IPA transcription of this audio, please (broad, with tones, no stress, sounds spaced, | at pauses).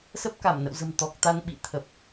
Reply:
s ə˦˥ p̚ k a˧˩ m n ə̰˧˨ w z ə̤˨˩ m t̪ ɔ˨˩ k̚ t̪ a˧ n ɓ ḭ˧˨ t̪ʰ ə˨˩ p̚